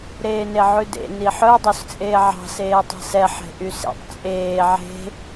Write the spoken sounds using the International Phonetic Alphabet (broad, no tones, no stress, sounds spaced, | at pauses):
ɾ eː n e ʕ ʉ d ḛ n i ħ œ dˤ ø s t͡sʼ eː ʕ ɑ̤ s eː tˤ æ̤ s ɛ ħ e̤ ʔ y s ḛ tˤ t͡sʼ eː ʕ e̤